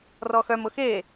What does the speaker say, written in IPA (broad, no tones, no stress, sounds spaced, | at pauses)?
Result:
r ɔ x œ m ʊ x e